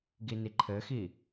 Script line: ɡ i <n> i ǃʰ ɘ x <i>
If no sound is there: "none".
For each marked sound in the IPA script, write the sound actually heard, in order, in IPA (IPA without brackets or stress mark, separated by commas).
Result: n, i